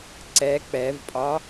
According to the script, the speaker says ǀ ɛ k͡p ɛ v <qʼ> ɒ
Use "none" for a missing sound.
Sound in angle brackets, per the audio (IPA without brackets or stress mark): pʼ